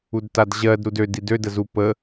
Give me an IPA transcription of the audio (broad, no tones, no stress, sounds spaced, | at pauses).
u d t a d ʑ ɜ d ɾ u d ø d i d ø d ə z u p ə